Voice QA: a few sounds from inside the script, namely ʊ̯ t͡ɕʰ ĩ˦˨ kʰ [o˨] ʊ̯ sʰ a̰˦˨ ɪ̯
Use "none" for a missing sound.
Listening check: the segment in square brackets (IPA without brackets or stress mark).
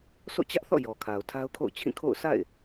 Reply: o̰˦˨